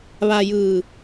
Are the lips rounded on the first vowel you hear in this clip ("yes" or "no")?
no